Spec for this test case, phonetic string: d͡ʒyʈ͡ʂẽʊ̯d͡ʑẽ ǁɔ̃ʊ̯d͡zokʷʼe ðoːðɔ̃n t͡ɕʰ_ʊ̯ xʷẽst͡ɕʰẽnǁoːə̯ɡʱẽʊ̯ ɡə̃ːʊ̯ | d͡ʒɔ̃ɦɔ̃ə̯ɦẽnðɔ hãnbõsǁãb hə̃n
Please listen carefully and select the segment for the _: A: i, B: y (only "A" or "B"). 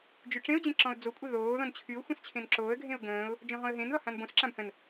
B